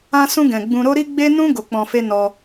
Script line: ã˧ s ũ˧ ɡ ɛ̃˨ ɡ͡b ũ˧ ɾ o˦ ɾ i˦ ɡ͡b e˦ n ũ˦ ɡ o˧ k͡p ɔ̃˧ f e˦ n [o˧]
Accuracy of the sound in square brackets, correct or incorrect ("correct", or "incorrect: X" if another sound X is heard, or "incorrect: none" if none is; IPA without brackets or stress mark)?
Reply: incorrect: ɔ˧